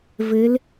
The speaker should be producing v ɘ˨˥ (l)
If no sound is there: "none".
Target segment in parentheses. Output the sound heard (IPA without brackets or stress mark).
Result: l